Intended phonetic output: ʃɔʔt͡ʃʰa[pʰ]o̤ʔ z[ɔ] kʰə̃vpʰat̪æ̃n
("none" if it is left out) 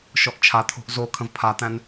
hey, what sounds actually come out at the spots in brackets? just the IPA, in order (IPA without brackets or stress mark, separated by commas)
t̪ʰ, o